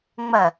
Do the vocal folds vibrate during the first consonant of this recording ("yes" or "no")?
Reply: yes